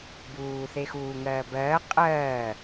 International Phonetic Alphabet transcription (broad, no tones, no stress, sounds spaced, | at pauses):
b uː θ e x uː ŋ ɜː b ɜː qʼ ɜː